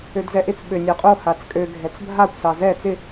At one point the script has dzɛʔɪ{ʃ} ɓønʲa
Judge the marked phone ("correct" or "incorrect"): incorrect